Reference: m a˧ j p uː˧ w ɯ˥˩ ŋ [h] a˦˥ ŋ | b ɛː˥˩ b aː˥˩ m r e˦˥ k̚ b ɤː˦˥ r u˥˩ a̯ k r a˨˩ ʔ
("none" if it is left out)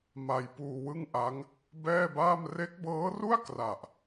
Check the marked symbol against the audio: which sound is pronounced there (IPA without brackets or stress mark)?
ʔ